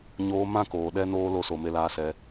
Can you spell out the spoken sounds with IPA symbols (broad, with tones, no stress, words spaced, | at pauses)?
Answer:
ɲoː˧mã˦˨koː˨ ɗɛ˦noː˦ lo˦so˧ me˧laː˧sɛ˧